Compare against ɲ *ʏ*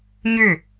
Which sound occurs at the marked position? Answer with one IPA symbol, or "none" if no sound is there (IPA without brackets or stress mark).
ʏ